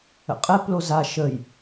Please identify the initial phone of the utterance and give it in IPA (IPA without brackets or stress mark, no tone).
ə̰